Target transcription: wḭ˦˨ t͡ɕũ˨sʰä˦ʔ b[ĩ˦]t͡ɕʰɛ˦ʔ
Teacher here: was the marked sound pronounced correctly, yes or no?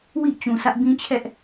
yes